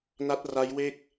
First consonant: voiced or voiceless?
voiced